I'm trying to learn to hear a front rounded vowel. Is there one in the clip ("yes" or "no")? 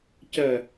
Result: yes